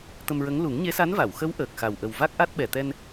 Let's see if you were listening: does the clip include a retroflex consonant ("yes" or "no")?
no